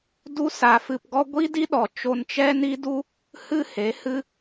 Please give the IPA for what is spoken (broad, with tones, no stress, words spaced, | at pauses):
du˦sa˧fɨ˧pɡɔ˦ ɡʷi˦di˦ɗɔ˨ t͡ʃo˧nt͡ʃɛ˦ni˦du˦ | hɨ˦he˨˦hɨ˦